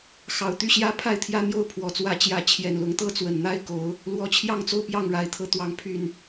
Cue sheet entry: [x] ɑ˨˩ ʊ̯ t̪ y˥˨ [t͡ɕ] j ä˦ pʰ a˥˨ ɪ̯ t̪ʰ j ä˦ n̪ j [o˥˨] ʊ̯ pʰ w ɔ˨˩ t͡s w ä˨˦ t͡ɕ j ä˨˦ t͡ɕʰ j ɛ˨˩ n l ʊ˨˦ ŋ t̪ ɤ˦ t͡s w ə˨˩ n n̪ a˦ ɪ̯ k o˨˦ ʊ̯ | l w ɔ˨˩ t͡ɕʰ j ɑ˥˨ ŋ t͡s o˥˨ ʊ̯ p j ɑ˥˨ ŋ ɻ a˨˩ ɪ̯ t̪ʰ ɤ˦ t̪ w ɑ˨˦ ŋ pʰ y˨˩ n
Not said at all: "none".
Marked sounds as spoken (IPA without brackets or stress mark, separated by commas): x, ɕ, o˥˨